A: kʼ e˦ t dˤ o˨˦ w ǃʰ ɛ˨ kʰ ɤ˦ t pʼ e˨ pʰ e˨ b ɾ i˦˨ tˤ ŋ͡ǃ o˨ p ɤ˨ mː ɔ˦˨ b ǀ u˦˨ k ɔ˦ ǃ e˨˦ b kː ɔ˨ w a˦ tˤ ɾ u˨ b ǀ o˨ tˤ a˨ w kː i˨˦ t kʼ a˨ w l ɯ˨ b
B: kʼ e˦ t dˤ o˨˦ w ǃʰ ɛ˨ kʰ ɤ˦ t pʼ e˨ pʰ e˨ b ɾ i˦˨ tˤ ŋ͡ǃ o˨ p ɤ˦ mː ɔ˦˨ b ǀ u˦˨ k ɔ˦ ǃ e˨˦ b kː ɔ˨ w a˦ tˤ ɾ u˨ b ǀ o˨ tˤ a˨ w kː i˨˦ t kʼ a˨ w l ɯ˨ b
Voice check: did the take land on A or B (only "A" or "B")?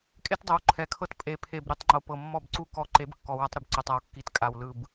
A